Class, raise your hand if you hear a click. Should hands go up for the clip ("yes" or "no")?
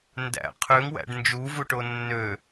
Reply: no